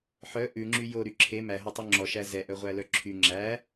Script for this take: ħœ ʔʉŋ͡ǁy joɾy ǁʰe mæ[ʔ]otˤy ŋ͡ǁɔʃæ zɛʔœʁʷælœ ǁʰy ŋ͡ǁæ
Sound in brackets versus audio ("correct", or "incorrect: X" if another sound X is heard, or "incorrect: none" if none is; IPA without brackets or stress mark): incorrect: ɦ